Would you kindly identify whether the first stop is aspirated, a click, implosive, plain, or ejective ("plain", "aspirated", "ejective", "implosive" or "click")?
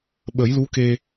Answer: implosive